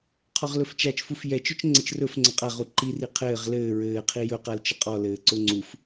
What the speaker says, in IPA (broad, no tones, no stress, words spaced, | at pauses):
qʰɔʁlɵft͡ʃat͡ʃfuf jɛt͡ʃɵt͡ʃŋ͡ǀɘt͡ʃ rɵf ŋ͡ǀəqʼaʁu ǃiri qʰɘːʁ lɘː ɹɘːqʰi jɵqalt͡ʃə qʼɔlɘː ǀʊŋ͡ǀuf